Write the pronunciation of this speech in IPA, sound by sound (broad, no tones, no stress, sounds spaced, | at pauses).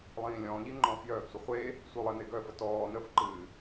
lˠ ĩː lʲ ɔ̃ː ʎ i ŋ͡ǃ ɔ̃ː f j œː ɡ sʷ ə χʷ e | sʷ œ lˠ ɘ n e ɡ œ f ə t ɔː n ə f ǃ ɨː